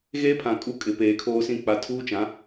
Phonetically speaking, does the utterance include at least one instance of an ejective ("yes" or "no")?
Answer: yes